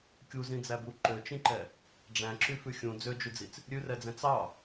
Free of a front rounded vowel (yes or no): no